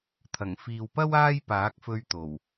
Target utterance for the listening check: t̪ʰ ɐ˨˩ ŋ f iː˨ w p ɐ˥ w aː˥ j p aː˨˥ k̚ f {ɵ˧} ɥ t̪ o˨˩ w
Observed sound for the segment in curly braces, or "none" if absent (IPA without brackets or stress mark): ɵ˧